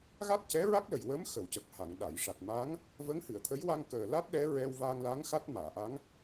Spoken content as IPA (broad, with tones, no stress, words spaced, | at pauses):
ɣa˦˥t̚cɛ˧˥ɹa˦˥k̚lə˨˩j wəː˧˥mxə˨˩˨w cə˨˩k̚ha˨˩˨ŋ ɗa˨˩˨jʂa˨˩t̚ma˧˥ŋ | və˧˥ŋhɨ˨˩˨ə̯t̪ʰə˧˥jwa˧ŋ kəː˨˩la˦˥t̚ ɗɛ˧˥ɹɛ˧w va˧ŋla˧˥ŋ xa˦˥t̚maː˨˩˨ʔa˧˥ŋ